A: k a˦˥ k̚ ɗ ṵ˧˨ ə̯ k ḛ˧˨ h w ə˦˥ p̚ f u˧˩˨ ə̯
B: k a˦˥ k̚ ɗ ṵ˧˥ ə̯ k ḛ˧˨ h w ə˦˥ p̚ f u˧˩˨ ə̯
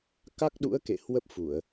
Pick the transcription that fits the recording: B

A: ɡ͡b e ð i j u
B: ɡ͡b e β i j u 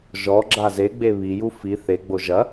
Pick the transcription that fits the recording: B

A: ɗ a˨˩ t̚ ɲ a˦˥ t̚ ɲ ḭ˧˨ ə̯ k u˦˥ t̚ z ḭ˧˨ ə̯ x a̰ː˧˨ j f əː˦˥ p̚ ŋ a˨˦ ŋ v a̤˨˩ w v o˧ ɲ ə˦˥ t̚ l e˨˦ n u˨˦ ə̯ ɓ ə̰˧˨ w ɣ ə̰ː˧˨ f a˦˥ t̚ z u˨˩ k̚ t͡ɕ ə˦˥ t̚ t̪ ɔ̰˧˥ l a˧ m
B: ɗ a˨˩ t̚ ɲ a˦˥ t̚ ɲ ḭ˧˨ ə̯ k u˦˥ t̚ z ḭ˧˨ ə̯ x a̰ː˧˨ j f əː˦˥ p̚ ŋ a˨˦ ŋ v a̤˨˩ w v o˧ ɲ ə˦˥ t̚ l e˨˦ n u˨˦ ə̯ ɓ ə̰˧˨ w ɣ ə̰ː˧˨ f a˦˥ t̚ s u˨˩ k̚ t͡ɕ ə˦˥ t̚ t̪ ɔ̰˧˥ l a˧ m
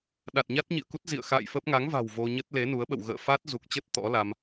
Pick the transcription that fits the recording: A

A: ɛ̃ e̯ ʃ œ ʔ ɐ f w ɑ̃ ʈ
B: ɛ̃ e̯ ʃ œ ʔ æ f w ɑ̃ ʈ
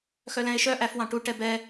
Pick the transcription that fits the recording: B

